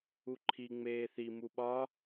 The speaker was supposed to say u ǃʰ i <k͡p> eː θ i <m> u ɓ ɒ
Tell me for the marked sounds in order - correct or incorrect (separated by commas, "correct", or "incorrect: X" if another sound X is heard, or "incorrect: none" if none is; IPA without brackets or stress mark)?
incorrect: ŋ͡m, correct